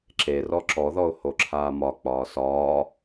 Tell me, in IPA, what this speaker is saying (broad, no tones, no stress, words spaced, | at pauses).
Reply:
ǁe rɔǁɔðɔʊ̯ hoǁʰaːmɒ k͡pɒːsɒː